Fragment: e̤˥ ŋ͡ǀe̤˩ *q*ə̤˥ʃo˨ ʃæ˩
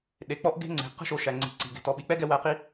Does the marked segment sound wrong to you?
no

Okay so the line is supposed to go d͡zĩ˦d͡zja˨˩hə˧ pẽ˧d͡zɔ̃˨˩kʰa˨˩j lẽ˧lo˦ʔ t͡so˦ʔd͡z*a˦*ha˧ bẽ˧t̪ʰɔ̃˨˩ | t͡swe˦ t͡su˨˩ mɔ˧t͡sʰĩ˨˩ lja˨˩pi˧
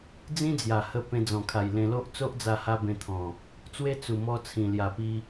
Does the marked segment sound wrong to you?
yes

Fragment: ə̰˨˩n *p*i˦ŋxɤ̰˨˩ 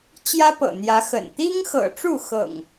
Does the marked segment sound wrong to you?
yes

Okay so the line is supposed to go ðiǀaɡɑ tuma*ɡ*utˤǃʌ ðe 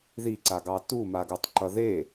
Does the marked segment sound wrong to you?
no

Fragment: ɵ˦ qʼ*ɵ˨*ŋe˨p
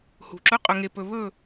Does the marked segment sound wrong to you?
no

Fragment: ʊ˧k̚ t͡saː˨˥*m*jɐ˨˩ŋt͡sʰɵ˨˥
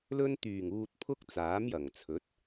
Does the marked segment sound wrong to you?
no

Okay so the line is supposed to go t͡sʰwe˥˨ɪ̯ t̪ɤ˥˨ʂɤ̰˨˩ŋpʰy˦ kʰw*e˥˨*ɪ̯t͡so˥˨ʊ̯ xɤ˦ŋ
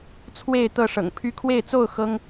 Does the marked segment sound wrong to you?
no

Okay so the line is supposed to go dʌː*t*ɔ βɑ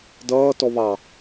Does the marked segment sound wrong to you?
no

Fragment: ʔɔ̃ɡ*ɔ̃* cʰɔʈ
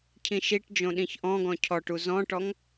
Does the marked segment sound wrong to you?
no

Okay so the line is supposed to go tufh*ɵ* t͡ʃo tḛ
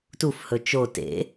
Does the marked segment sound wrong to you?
no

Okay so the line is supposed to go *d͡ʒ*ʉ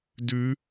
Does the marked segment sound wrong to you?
yes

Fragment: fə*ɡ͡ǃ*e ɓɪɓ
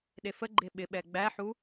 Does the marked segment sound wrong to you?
no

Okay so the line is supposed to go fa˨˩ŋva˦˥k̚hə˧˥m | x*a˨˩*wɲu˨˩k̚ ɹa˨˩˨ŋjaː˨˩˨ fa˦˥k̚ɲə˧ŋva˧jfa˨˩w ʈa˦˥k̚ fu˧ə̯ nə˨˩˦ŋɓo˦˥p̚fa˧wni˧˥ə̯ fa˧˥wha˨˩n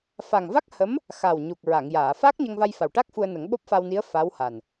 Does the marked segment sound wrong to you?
no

